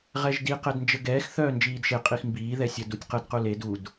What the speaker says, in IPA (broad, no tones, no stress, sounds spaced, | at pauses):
ʁ ɛ ʒ d i q ɛ d n d͡ʒ ə ɡ ɛː x θ œː n d͡ʒ iː d ʃ e qʼ i x m b iː ð ɛ sʲ ə d u tʲ q ə d q u l e d u d